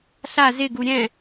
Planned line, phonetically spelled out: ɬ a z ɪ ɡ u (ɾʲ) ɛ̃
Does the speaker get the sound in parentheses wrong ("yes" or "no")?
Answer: no